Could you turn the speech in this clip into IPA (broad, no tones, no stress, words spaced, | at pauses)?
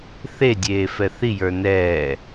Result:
θedʲeːfɛ θijə˞ nɛː